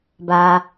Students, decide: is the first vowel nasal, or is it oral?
oral